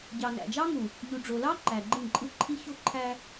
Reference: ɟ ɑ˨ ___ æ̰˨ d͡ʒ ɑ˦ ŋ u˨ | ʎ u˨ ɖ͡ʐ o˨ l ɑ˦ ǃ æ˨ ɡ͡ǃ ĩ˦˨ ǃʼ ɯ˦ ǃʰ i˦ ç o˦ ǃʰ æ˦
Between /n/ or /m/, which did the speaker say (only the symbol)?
n